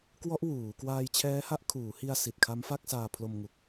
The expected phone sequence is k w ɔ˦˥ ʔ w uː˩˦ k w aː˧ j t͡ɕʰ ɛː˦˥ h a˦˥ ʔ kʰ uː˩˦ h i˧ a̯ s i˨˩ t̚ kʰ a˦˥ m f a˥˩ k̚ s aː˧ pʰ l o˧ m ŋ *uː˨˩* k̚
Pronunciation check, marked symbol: incorrect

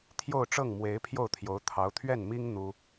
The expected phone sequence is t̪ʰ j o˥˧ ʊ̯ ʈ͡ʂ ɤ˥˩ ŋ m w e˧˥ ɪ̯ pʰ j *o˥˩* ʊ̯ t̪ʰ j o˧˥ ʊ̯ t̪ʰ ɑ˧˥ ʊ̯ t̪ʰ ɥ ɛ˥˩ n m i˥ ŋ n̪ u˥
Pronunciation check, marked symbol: correct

